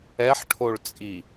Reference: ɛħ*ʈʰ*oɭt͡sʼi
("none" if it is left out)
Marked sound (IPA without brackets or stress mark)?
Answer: ʈʰ